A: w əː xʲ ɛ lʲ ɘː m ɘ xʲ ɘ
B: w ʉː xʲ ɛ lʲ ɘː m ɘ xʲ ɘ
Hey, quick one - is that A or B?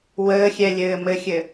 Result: A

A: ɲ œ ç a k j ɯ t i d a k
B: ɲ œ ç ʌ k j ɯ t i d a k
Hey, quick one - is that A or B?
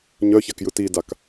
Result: A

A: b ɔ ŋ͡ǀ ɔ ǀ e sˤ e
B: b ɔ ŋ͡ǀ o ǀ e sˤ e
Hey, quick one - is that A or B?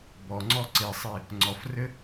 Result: A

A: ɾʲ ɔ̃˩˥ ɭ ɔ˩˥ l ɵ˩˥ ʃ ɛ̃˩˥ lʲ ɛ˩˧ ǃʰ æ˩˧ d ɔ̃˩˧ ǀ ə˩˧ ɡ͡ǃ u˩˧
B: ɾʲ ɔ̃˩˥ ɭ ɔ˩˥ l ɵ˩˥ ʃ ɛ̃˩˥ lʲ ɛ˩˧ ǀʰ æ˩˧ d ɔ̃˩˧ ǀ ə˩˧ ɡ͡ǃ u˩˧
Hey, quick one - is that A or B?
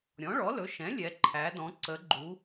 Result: A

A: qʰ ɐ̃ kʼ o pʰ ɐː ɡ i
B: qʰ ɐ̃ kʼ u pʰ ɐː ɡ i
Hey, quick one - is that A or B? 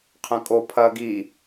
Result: A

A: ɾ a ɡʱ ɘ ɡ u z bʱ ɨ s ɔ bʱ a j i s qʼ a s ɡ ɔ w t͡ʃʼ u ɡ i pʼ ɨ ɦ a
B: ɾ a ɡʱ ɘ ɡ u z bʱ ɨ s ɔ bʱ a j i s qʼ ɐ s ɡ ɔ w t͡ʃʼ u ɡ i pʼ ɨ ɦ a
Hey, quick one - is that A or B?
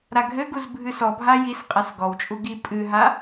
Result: A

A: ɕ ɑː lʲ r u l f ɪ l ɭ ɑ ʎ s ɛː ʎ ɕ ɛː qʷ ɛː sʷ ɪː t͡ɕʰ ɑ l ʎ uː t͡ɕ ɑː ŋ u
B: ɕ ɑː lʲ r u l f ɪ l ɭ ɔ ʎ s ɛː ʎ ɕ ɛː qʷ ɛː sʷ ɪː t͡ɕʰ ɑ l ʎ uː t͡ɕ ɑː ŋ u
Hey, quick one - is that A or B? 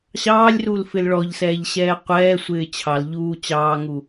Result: B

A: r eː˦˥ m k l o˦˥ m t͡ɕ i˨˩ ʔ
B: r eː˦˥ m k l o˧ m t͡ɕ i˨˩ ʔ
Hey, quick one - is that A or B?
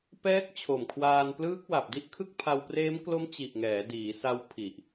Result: A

